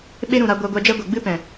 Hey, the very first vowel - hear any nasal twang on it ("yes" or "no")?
no